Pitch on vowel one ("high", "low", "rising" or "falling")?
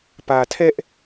low